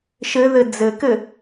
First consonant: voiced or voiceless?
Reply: voiceless